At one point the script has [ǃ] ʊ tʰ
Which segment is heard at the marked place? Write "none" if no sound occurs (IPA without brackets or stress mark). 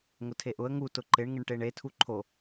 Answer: ŋ